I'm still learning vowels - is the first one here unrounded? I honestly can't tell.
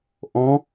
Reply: no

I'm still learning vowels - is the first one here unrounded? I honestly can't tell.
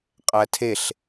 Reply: yes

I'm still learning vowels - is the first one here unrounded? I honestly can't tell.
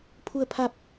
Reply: no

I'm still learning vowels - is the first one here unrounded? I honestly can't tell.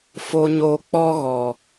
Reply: no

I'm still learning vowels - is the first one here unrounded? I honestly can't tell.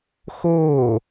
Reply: no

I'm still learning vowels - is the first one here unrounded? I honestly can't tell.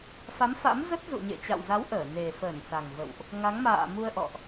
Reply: yes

